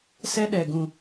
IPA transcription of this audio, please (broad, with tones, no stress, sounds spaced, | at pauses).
s ɛ˦ ɗ ɛ˨ ɡ ũ˨